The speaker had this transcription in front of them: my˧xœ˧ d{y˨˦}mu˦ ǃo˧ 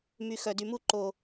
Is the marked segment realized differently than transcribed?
yes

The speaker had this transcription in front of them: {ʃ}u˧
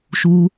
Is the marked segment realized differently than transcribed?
no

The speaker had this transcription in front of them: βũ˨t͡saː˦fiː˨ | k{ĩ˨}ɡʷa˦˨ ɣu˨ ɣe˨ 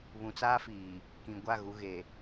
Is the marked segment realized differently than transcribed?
no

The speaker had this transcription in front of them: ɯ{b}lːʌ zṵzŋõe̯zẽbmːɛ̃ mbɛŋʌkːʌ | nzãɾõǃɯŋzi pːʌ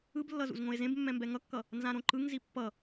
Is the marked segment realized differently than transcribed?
no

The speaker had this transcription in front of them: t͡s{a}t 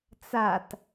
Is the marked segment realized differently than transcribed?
no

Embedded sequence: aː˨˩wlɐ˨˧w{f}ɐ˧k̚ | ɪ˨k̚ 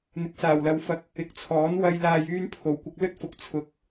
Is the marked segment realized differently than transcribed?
no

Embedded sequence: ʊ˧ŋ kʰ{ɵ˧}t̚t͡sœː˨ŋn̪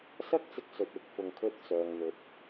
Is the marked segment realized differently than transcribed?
no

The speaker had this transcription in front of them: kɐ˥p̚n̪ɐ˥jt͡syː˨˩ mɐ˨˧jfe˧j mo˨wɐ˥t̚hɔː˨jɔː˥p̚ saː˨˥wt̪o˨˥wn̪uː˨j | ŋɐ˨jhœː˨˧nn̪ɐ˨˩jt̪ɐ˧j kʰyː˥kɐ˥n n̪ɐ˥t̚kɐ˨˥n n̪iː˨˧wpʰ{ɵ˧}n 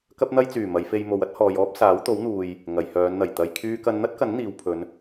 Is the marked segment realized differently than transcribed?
yes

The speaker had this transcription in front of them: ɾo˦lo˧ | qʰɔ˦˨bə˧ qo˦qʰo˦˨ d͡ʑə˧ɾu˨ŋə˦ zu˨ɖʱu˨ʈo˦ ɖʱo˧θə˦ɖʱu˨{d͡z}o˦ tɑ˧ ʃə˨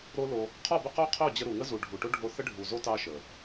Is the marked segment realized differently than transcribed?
yes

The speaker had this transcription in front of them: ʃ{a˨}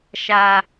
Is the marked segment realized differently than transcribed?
no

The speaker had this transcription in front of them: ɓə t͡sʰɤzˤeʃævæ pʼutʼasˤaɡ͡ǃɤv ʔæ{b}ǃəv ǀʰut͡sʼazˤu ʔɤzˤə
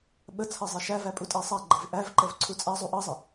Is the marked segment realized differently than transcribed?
yes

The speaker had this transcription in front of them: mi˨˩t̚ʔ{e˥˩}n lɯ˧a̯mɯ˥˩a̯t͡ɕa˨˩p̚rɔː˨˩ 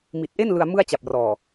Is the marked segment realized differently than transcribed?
no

